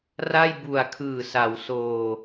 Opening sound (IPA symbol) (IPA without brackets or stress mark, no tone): r